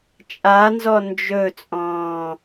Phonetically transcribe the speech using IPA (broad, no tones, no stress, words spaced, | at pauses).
t͡ʃʼanzɔ nd͡ʒɵt͡sʼɔ̃ː